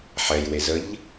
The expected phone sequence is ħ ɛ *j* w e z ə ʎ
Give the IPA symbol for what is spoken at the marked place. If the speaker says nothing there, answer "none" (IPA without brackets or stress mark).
j